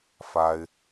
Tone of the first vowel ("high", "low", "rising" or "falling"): high